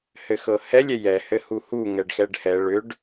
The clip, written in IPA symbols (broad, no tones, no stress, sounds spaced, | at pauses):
h ɘ x ɤ h ɛ lʲ ɛ j ɛ h ɘ h u h u ŋ ɛ ɖ x ɛ ɖ h ɛ ɭ ʏ ɖ